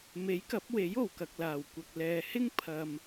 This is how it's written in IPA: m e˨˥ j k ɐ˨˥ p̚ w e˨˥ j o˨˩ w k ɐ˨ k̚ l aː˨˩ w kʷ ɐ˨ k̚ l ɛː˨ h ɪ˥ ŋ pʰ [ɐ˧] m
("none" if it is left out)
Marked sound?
ɐ˧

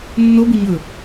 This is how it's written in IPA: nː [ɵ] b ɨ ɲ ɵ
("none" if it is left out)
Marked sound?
o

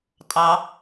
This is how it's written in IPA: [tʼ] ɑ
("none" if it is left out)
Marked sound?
tʼ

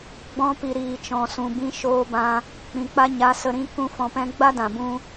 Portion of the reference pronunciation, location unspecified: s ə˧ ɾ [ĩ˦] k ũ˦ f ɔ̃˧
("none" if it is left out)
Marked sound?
ĩ˦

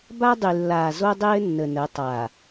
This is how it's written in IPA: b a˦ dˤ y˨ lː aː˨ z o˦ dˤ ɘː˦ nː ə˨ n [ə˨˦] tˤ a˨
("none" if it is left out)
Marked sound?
ə˨˦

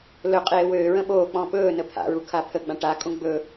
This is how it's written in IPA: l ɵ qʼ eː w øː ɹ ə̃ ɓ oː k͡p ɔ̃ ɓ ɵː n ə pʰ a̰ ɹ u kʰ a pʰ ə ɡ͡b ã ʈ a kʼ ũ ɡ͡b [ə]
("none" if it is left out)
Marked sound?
ɵ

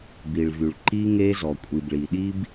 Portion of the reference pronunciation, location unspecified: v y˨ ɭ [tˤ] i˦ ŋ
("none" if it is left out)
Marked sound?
ǃ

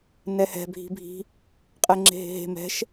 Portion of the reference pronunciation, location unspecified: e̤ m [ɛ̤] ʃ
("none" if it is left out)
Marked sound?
ɛ̤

